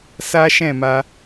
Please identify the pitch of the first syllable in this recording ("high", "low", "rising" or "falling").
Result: high